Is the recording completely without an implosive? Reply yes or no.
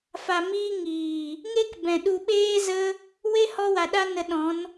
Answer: no